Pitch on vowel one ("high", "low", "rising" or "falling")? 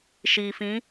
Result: low